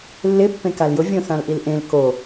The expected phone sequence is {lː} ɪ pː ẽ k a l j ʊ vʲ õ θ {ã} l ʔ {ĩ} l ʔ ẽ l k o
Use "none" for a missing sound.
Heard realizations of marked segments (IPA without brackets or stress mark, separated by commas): lː, ã, i